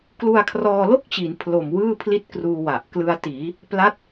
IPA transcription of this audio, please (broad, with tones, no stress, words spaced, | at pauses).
klu˧a̯kʰrɔː˧lo˥˩k̚t͡ɕi˩˦n pʰlo˨˩mwɯː˥˩ pʰli˥˩t̚kruː˧wa˨˩ʔ klɯ˧a̯tiː˩˦ | pla˦˥t̚